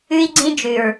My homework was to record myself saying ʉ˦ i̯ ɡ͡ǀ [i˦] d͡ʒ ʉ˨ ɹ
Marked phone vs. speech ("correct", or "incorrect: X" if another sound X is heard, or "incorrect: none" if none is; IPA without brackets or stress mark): incorrect: ĩ˦